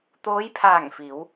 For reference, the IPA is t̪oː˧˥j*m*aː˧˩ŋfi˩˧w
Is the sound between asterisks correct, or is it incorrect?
incorrect